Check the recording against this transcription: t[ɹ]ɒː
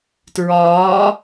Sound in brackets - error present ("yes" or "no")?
no